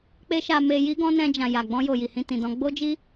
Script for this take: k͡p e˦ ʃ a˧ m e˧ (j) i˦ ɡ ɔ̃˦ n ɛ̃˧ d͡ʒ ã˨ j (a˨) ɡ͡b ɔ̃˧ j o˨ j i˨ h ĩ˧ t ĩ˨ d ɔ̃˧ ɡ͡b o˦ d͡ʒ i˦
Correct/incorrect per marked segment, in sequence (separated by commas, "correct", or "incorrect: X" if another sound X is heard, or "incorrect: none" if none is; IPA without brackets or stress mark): correct, correct